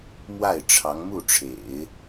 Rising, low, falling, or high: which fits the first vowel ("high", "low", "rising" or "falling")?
falling